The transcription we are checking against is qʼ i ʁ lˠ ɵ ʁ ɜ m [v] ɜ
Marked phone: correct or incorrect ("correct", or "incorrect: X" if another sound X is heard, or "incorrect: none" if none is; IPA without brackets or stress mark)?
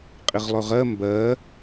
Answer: incorrect: b